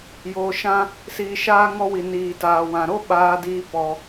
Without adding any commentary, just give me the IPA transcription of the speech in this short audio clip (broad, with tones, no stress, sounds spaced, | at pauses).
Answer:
j oː˧ ʃ ã˦ | s iː˧ ʃ aː˦ ŋ ɔ˧ w i˨ n iː˨ t aː˨ w ã˨ ɾ o˦ ɓ aː˧ d iː˧ p ɔ˧